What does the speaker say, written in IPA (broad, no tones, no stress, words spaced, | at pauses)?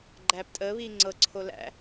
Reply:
ɡ͡ǃæːptʼəːβiː ŋ͡ǀɤǀʰo læ̰